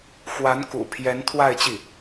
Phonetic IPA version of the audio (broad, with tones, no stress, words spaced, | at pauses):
xwa˧˥nkṵ˨˩pʰjɛ˧˥n t̪ʰwa˥˧ɪ̯t͡ɕi˥˩